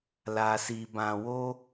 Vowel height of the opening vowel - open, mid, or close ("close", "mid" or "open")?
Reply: open